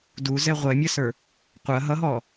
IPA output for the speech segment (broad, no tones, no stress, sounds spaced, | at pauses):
d u z ɛ ʁʷ ɛ mʲ ɐ s ə˞ | qʷ ɐ ɦ ʌ ɦ ɔ